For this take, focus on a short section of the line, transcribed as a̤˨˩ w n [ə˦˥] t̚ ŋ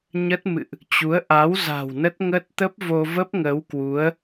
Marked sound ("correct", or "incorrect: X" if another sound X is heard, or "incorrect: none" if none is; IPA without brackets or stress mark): correct